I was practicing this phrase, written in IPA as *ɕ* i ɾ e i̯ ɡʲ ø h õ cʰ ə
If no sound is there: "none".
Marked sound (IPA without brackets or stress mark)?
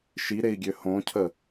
ʃ